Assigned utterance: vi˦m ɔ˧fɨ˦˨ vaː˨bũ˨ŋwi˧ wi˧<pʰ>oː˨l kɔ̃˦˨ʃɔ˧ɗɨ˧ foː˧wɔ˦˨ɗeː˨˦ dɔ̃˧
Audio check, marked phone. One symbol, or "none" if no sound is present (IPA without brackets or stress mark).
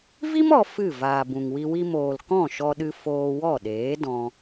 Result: m